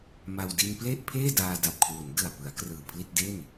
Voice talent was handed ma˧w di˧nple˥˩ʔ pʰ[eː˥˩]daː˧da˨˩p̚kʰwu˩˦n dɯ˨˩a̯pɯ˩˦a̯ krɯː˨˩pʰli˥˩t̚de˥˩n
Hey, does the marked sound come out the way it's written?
yes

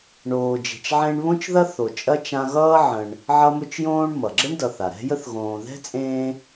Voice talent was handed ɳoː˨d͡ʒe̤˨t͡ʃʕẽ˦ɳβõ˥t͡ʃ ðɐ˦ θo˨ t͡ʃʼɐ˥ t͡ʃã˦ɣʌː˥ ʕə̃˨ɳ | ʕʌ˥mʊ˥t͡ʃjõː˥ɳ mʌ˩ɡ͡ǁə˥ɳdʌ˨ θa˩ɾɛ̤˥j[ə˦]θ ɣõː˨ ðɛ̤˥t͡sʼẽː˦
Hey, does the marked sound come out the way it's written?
no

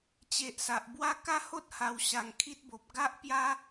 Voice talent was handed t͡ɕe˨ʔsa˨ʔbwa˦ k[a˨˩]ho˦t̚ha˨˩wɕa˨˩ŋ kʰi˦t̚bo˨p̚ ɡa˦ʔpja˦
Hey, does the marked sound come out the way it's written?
no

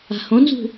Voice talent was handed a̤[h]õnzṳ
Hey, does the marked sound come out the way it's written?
yes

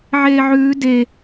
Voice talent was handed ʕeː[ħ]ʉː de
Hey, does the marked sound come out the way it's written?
no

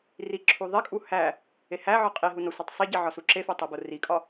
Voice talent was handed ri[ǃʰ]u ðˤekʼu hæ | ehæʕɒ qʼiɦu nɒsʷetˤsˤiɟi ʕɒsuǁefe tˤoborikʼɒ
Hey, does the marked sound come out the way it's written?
no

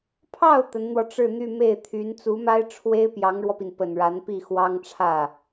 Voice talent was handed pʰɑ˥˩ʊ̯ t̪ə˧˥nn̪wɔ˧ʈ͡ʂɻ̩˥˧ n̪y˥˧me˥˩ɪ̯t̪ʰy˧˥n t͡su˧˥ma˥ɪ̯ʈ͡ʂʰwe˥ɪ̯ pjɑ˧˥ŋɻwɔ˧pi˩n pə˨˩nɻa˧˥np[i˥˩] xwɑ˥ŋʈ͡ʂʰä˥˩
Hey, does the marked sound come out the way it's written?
yes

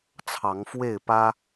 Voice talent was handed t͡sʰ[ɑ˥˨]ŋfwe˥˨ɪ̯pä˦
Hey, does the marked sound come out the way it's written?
no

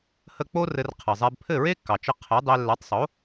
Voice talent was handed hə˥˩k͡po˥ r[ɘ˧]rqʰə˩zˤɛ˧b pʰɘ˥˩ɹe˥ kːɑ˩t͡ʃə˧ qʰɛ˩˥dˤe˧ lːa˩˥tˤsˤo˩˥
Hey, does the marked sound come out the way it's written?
yes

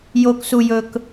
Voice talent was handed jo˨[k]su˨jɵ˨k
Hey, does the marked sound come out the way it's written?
yes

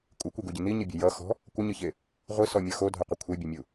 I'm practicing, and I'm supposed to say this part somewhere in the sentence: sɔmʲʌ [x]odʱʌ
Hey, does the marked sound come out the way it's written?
yes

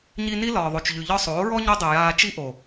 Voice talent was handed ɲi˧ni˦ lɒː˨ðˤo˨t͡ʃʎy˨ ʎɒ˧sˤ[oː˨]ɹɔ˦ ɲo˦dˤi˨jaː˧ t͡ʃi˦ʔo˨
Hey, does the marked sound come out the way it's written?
no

